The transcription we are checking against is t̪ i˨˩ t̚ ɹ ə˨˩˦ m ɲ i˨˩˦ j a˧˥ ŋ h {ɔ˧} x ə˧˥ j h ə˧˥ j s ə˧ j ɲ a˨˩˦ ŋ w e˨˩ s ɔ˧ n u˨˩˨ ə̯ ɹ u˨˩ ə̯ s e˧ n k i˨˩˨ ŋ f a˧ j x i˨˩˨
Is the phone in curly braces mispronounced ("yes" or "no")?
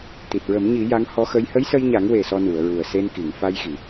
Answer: yes